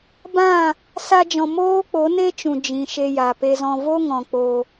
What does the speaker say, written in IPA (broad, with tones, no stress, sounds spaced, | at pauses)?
b ã˦˨ | s a˧ d͡ʒ ɔ̃˨ m oː˦ k͡p o˨˦ n e˦ t͡ʃ ũ˨ d͡ʒ ĩ˨ ʃ e˧ j a˨ p e˧ z ɔ̃˧ v o˦ ŋ ɔ̃˨ k͡p o˧